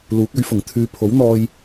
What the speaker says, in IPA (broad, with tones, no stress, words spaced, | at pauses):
luː˨˥k̚ɵ˨˥ɥfʊ˨˩ŋ t̪ʰyː˨˧pʰo˨˥wn̪ɔː˧j